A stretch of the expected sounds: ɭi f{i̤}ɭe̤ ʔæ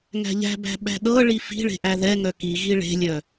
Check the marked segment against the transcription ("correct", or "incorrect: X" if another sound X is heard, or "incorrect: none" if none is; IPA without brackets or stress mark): correct